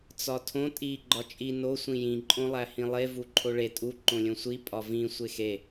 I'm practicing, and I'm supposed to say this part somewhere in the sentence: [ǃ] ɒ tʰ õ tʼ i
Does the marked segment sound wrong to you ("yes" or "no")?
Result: yes